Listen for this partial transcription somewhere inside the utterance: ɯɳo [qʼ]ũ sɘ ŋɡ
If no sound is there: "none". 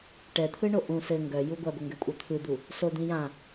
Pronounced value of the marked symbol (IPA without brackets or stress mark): ʔ